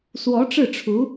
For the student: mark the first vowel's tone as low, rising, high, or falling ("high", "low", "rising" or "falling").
rising